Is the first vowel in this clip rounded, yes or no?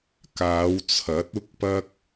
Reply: no